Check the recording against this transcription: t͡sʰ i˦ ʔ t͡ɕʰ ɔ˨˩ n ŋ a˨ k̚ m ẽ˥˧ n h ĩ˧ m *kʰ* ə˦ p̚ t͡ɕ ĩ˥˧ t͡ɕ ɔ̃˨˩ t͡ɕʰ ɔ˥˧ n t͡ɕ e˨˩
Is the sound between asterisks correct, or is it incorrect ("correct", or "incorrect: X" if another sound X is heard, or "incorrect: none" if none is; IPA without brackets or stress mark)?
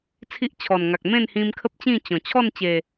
correct